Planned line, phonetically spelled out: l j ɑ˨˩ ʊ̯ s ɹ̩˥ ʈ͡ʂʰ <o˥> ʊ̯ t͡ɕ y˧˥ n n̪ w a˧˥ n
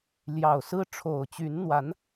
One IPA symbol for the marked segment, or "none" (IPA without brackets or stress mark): o˨˩